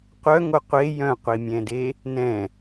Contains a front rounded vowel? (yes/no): yes